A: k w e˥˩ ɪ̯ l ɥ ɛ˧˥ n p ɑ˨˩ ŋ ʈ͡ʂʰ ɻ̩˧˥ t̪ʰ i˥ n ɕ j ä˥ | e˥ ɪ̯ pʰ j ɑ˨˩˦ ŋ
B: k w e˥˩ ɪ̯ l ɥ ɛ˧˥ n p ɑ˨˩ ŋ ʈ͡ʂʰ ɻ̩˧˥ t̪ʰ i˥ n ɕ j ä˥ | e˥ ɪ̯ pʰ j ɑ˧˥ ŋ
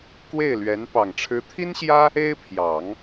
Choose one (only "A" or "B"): A